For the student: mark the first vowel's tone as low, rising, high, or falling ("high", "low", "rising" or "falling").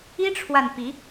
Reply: high